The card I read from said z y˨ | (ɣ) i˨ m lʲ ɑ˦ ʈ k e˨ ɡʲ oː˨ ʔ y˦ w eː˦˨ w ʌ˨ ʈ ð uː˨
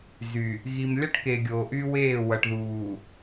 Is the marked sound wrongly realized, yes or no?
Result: no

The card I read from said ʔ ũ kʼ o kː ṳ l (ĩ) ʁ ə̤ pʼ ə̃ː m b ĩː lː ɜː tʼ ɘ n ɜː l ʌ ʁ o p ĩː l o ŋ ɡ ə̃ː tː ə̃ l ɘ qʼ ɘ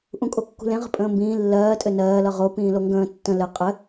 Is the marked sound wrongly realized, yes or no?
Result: yes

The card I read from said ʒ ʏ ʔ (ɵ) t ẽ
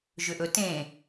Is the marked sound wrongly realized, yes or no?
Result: no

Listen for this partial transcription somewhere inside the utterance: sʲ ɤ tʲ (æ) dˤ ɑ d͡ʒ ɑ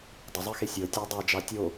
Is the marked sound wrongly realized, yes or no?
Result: no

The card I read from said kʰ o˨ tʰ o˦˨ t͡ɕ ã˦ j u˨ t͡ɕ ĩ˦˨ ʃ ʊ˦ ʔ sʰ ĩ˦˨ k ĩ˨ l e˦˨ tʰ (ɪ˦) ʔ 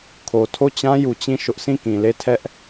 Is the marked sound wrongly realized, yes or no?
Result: yes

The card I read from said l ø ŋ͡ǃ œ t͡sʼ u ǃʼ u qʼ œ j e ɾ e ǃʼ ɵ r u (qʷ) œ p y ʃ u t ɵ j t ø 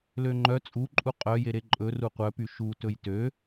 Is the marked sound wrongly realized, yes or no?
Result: no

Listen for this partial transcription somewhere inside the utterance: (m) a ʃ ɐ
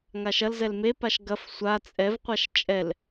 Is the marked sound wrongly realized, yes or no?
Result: yes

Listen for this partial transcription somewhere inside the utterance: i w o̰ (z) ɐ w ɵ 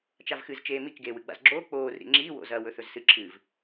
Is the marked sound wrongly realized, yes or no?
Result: no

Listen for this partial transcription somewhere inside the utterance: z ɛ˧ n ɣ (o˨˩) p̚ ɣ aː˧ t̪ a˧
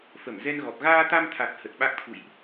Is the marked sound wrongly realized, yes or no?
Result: yes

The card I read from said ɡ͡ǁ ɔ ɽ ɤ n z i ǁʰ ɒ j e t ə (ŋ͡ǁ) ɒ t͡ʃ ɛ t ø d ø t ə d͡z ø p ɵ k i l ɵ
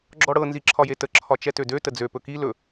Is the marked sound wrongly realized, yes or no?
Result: yes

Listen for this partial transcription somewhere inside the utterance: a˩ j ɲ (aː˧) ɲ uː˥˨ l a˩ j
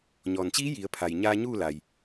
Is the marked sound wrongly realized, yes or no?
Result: no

